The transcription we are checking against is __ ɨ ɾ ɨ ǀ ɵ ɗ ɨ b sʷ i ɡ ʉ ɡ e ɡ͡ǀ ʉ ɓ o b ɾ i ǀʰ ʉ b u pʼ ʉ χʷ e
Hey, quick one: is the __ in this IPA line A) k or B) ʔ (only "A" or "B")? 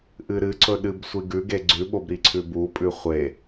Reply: B